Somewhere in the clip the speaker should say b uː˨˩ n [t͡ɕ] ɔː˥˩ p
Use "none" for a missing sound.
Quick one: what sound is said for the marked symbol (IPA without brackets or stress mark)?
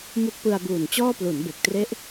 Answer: t͡ɕ